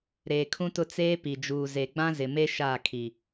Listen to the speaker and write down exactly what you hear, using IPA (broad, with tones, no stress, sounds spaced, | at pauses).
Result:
ɾ eː˨ kʰ ũ˦ t ʊ˦ t͡s eː˦ p i˨ d͡ʒ uː˨ z e˨ ɡ͡b ã˦ z ɪ˨ m e˦ ʃ aː˦˨ kʰ i˨